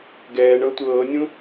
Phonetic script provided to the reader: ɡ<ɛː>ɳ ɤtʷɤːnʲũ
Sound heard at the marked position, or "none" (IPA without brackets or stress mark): ɛː